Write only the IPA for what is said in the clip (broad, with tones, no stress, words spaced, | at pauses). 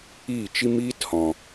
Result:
iː˦˨t͡ʃi˦miː˦thɔ̃˨